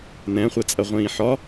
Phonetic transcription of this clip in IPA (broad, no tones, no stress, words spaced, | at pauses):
nɛ̃χʷɛt͡sʼɐ ʁʷĩːħɒ